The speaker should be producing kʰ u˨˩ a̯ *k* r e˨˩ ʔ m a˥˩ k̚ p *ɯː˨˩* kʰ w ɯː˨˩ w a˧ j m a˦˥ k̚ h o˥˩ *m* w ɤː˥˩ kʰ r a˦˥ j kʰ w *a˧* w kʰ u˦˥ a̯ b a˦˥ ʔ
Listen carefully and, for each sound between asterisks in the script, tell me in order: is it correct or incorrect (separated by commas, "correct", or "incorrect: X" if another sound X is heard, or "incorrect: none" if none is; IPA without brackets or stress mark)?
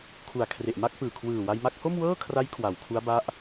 incorrect: kʰ, correct, correct, incorrect: a˩˦